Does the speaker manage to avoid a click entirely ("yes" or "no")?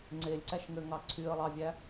no